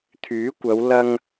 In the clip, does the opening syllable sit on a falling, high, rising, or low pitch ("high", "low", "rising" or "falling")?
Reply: rising